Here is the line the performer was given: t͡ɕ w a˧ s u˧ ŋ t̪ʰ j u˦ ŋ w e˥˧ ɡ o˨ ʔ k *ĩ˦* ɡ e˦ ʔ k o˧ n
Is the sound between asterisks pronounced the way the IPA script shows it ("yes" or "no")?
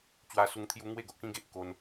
yes